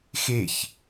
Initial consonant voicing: voiceless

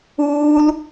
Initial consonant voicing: voiced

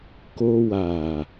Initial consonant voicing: voiceless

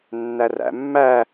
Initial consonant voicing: voiced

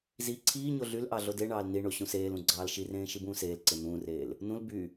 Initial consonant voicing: voiced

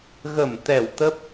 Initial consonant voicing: voiced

